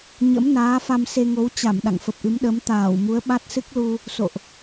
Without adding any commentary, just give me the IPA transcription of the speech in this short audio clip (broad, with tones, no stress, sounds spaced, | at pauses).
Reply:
ɲ ə̰˧˥ m n aː˨˦ f a˧ m s e˧ ŋ o˨˦ w t͡ɕ a˧˩ m ɗ a̰˧˨ ŋ f ə˨˩ p̚ ʔ ɨ˨˦ m ɗ ə˨˦ m t̪ aː˧˩ w m u˨˦ ə̯ ɓ a˦˥ t̚ s ɨ˦˥ k̚ l u˧ | s o̰˧˨ ʔ